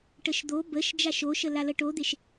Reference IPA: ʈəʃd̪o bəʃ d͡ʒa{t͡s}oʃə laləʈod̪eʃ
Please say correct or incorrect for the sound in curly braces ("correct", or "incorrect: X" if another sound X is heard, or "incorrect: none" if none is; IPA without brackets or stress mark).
incorrect: ʃ